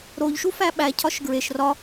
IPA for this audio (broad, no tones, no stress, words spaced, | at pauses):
ɾoʎʃu fæɓæ cʰɒʃɡɹeʃ rɒ